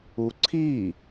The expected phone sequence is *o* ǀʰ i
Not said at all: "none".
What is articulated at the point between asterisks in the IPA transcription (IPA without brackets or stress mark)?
u